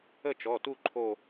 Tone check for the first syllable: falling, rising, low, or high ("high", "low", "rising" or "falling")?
falling